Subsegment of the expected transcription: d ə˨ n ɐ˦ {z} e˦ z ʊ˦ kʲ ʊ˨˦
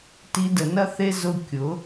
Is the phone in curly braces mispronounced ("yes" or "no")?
yes